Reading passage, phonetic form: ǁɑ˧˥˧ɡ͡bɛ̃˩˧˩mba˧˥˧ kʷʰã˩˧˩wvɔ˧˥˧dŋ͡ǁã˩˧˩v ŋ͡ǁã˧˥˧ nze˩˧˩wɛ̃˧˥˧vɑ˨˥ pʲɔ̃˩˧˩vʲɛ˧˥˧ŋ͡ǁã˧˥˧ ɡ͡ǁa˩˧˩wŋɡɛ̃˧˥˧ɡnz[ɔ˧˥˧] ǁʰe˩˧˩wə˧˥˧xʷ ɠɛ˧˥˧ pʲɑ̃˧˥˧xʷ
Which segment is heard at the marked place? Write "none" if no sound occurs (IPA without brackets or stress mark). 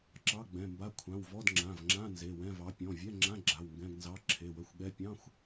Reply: ɑ˧˥˧